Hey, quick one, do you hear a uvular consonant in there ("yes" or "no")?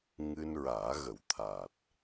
no